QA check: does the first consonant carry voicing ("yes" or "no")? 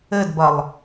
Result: yes